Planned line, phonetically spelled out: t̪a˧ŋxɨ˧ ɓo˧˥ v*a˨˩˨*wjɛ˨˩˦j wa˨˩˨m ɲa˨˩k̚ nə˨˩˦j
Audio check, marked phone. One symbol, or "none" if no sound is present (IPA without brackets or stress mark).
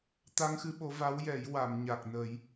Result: a˧˥